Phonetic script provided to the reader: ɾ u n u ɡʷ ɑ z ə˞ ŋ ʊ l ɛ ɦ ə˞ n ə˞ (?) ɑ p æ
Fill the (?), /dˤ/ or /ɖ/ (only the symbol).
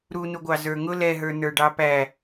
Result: ɖ